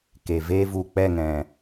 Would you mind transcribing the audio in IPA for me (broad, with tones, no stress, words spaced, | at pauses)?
ke˨veː˦ vu˨k͡pɛ˦˨ŋɛ̃˨